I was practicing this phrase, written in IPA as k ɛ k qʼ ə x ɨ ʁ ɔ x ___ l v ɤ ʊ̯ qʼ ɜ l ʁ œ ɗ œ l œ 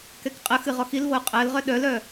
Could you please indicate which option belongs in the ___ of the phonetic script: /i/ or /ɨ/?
i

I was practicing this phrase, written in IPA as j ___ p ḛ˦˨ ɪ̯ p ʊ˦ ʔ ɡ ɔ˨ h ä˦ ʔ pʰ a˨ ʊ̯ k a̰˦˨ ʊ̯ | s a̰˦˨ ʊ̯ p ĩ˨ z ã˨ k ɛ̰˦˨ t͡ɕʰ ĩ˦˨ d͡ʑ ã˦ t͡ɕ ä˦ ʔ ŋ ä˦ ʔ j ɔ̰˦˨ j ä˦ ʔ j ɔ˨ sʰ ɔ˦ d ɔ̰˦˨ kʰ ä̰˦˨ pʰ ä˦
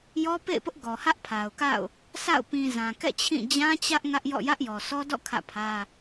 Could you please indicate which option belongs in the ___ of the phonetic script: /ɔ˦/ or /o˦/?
ɔ˦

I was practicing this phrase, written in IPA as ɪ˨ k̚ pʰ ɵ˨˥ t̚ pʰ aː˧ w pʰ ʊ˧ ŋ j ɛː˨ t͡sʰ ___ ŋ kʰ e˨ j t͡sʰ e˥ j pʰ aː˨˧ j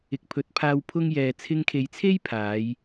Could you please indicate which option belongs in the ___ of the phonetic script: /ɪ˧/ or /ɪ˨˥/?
ɪ˧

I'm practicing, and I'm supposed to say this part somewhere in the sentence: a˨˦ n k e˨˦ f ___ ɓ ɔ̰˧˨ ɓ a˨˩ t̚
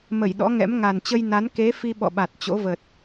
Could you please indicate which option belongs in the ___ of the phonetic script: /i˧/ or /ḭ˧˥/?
i˧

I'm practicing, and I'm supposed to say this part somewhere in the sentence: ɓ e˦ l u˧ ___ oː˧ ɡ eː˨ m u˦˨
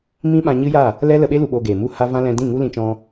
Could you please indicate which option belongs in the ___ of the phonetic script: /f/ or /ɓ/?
ɓ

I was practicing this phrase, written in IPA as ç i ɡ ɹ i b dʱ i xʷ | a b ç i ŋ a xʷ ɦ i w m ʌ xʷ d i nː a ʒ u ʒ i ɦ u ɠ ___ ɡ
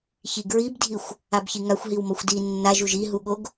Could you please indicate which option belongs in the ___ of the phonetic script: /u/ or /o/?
o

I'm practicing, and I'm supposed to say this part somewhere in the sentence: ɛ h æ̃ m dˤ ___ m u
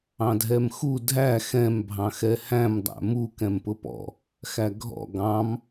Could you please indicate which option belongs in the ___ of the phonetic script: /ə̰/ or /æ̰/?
æ̰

